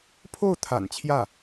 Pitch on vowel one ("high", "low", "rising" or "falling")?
falling